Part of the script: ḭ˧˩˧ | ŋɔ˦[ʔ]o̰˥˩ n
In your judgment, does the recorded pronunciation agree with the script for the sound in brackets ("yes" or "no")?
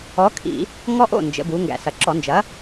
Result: yes